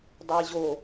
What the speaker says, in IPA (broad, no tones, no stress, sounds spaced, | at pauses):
dˤ ɛ j ʑ o